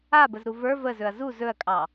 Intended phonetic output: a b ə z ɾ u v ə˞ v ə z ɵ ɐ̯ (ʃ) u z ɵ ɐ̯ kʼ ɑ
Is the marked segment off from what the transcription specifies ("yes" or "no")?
yes